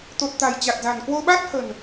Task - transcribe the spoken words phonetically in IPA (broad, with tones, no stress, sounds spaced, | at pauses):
t̪ o˨˩ t̚ t̪ a̤˨˩ j t͡ɕ a˨˩ t̚ z a̤˨˩ n k w o˧ ɓ a˦˥ t̚ h ə̤˨˩ n